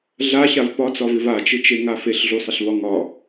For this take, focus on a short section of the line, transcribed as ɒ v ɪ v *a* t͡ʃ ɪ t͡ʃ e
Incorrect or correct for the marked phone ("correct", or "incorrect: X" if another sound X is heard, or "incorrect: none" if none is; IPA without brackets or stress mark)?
correct